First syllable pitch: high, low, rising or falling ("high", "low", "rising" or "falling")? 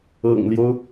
low